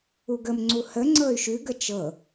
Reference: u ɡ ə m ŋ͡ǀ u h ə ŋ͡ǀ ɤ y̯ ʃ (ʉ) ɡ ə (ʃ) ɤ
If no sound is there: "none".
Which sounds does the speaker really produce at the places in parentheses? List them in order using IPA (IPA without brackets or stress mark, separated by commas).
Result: ʉ, t͡ʃ